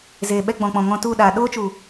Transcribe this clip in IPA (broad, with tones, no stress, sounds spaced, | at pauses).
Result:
z eː˨ ɓ ɛ˧ ɡ͡b ɔ̃˨ k͡p ɔ̃˨ ŋ ɔ̃˧ t u˦˨ ɗ aː˨ ɗ oː˦ t͡ʃ u˨